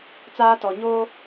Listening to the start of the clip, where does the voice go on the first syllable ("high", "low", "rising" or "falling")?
high